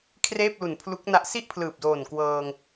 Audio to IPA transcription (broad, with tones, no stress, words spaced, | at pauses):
kʰreː˥˩p̚lu˨˩npʰlu˦˥k̚na˦˥ʔ si˥˩ʔpʰlɯː˨˩p̚doː˨˩n kwɤː˧ŋ